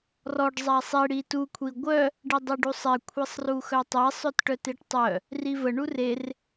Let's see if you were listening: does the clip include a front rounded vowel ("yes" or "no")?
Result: yes